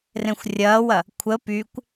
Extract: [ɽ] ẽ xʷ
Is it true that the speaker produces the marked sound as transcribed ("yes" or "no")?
no